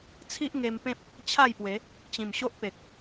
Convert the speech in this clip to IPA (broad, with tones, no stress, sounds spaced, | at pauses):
t͡sʰ i˦ ʔ ŋ e˧ m p ẽ˦ p̚ | t͡ɕʰ a˥˧ j p w e˨˦ | t͡ɕ ĩ˨˩ m ɕ o˦ ʔ p e˨ k̚